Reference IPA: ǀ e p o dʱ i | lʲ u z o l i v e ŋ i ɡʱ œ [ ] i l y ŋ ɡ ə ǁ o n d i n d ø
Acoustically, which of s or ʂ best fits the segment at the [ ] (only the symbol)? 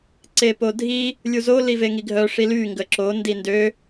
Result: ʂ